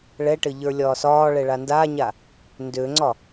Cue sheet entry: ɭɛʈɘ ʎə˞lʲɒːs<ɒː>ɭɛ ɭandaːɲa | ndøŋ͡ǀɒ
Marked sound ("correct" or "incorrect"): correct